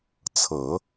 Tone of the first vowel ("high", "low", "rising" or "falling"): low